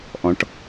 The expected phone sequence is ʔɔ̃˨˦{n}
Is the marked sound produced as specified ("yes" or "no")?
no